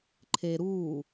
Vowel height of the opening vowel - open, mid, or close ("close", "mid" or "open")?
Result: mid